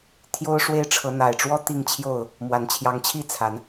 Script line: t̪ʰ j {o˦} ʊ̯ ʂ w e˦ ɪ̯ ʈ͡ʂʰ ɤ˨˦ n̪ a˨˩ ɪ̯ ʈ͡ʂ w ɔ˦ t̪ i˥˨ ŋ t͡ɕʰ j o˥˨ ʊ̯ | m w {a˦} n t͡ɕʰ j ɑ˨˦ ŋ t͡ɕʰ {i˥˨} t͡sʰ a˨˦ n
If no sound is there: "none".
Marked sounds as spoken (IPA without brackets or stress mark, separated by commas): o˦, a˨˩, i˥˨